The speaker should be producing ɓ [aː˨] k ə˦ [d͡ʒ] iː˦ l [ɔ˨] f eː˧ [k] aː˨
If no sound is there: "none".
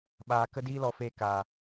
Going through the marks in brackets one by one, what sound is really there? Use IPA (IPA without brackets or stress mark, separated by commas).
aː˧, d, ɔ˧, k